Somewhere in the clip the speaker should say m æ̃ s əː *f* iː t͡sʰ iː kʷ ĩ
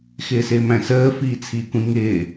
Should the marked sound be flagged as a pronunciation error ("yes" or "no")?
no